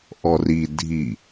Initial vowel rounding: rounded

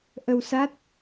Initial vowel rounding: unrounded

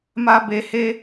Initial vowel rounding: unrounded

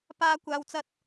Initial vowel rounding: unrounded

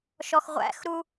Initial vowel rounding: rounded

